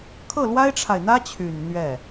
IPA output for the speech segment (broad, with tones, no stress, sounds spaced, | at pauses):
kʰ ɤ˥˩ l w a˥ ɪ̯ ʈ͡ʂʰ a˨ ɪ̯ n̪ ä˥ t͡ɕʰ y˨˩ n n̪ ɥ ɛ˥˩